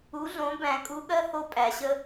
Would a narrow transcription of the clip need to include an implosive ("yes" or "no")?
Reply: yes